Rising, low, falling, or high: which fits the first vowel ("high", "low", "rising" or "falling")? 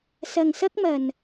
low